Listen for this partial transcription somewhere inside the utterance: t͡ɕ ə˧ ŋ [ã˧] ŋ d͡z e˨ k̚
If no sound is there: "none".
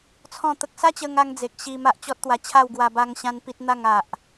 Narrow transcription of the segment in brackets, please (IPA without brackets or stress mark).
a˧